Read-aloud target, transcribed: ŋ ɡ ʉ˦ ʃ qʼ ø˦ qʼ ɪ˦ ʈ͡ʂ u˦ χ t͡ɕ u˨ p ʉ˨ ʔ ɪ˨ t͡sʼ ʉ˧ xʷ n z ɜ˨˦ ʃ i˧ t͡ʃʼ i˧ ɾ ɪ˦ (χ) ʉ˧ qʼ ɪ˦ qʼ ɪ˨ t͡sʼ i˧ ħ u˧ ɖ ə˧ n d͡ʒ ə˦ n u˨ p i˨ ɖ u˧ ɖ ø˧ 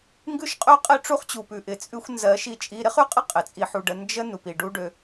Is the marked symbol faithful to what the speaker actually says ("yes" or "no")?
yes